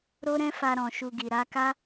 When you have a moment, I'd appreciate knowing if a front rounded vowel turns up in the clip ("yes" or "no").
no